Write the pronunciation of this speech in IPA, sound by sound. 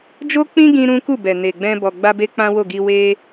d͡ʒo˦k͡pĩ˦ɡĩ˧ ɾũ˦ku˦˨ bɛ˨ne˨ɡ͡bɛ̃˧ bɔ˨ ɡ͡ba˧be˧ k͡pã˦wo˦˨ɡi˧ we˦

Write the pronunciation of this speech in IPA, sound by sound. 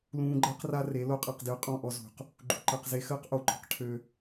lũː˧ɡ͡ǃɜ˦qra˦ re˨˦lo˦qʼɜ˧q djʊ˧qʼɔ̃˦˨ʔɔ˧ zṳ˨q | ɡ͡ǃṳ˨ǃɜ˨qze˧ xəː˦qʔo˨ǃɔ̤˦q ʈʰø˦

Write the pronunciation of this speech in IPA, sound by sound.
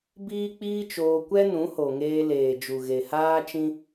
biː˦k͡piː˦t͡ʃoː˧ kʷɛ˦nũ˨˦ho˨ŋeː˧ leː˨ d͡ʒu˨ɣe˨haː˦t͡ʃĩ˦

